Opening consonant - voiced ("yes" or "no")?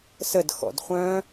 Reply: no